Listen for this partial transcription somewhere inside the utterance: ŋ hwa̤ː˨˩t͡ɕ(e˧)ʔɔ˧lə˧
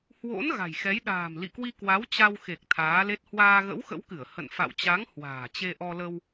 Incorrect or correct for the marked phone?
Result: correct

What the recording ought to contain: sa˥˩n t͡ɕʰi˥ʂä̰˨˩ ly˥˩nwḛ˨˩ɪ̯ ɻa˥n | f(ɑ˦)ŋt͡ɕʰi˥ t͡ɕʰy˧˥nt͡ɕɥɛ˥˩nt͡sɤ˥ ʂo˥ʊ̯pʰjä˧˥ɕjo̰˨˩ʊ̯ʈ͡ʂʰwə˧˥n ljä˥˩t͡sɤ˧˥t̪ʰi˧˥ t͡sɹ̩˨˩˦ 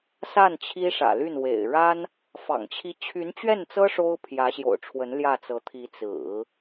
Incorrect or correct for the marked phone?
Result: incorrect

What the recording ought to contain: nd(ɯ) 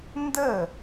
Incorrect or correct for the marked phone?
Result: incorrect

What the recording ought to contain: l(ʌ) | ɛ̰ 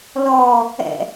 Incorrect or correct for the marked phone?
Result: incorrect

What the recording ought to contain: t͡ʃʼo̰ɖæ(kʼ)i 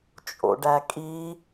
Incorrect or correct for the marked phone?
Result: correct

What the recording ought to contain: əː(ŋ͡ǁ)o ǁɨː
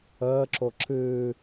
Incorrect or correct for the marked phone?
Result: incorrect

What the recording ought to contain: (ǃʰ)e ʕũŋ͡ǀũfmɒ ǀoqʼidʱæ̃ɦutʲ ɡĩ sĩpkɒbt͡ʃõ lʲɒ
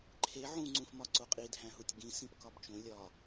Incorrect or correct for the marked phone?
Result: correct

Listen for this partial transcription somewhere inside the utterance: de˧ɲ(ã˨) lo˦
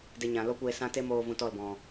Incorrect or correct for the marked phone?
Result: correct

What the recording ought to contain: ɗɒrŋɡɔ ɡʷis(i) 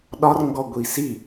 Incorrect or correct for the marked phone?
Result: correct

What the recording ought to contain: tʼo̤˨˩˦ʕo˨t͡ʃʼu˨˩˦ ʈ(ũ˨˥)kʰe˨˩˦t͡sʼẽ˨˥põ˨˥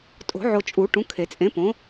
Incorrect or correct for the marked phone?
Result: correct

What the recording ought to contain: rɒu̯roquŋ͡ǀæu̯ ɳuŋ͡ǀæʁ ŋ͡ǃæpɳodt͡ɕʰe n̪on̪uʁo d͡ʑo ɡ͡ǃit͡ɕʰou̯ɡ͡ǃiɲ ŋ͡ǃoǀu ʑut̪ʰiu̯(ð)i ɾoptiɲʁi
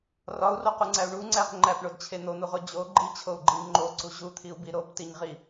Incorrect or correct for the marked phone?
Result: incorrect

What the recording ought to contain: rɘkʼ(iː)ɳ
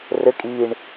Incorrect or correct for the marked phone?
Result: correct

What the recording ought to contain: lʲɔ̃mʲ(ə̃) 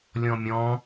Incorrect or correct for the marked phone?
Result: incorrect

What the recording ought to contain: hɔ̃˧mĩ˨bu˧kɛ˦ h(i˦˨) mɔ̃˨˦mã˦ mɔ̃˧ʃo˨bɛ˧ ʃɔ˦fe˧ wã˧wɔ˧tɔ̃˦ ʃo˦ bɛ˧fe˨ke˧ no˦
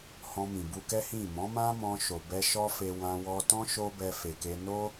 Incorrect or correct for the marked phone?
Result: incorrect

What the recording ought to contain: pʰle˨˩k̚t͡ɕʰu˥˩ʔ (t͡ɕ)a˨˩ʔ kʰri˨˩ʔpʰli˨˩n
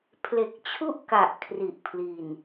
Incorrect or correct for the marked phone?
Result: incorrect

